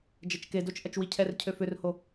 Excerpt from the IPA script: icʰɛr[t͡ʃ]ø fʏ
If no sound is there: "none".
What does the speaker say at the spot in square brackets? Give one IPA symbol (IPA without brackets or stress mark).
cʰ